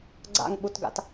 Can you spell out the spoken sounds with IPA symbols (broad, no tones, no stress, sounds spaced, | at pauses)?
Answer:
ɡ͡ǀ a̰ ŋ ɓ u t ɡ a̰ t